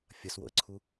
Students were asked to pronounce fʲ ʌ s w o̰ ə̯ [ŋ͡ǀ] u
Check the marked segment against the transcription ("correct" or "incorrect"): incorrect